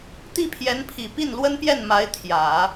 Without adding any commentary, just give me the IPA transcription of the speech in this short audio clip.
t̪i˥˩pʰjɛ˧˥npʰi˨˩ pi˥˩nlwə˥npjɛ˥˩n ma˧˥ɪ̯ t̪ʰjä˨˩˦

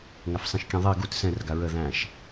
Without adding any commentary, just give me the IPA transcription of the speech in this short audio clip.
ŋafsˤĩʃkʲɛ̃ðˤi ɡut sɛ̃rɡa ɹə ðæ̃ʃ

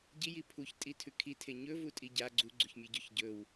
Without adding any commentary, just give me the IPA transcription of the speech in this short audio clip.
ɟiji pʰuçtʼitʰʉ kʰitʰe ɲɵvutʼi ɟa ɡ͡ǀuɡ͡ǀuçmʲɵɟoç ɟɵw

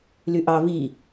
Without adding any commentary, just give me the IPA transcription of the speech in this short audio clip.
lyʔɑ vi

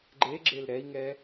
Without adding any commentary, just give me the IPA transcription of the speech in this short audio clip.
ɡ͡ǃeɡ͡ǁel ɾɛi̯ŋɛ

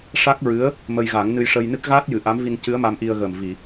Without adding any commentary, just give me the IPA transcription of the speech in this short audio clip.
ʂa˦˥k̚ɹɨ˧˥ə̯ | mə˧jɣa˨˩˦ŋ nɨ˧jʂə˧jnɨ˦˥k̚ ɣaː˦˥t̚jɨ˨˩˨ ʔa˧˥mvi˧ncɨ˧˥ə̯ ma˧mʔi˧ə̯ɣə˨˩m vi˨˩˨

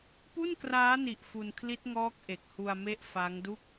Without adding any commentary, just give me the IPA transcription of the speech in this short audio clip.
pu˥˩nkraː˦˥ni˨˩ʔ fu˧nkʰli˦˥t̚ŋɔː˦˥k̚ ʔe˨˩k̚hu˧a̯me˦˥ʔ fa˦˥ŋdu˥˩k̚

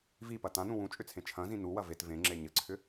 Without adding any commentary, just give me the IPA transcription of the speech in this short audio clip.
vipɐ tãnũ wũt͡ʃʼʏt͡sʰẽ t͡ʃʰɐ̃zĩ nuwɐ vet vẽŋ͡ǁe ɲɘǀʰʏ

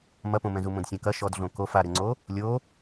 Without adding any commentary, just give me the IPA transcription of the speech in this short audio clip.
mɐpõmɛ̃zu mõdsʲãkɐ ʃɔdɮõ kof aɾɘŋ͡ǀo | lʲo

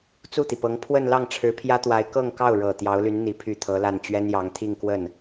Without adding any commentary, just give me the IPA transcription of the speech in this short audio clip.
t͡su˥˩t̪i˩pɤ˧˥ŋ pʰwə˥˧n lɑ˥˩ŋʈ͡ʂʰɻ̩˧˥pʰjä˥t̪wa˧˥ɪ̯ kɤ˥˧ŋkɑ˥˩ʊ̯ ɻɤ˨˩ t̪jɑ˧˥ʊ̯ly˧˥n n̪i˧˥pʰy˥˩t̪ʰɤ˧˥la˥˩n t͡ɕɥɛ˥njɑ˧˥ŋ t̪ʰi˥˧ŋkwə˥˩n

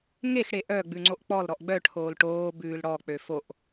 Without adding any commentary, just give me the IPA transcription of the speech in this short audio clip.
ŋexɽe ʔœ ɡ͡bʉŋ͡ǀoʔk͡pɔlɾɔʔ ɡ͡bœʈʰoːl ʈoː bʉːlɽɔk͡pø foʔ

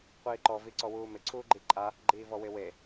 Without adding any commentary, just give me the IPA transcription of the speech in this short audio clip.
qʷiːǃɔ viǀɔwuːmɪ ǀʰuːɡ͡ǃiǃʼa | ɡ͡ǃiːvɔwɪwe

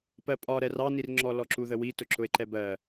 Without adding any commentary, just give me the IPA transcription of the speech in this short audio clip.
pɜpʼɒ ɾɛrɑnirŋ͡ǁɔ lɔǁuðəwi tʊǁʊe̯ǃɛbɜ

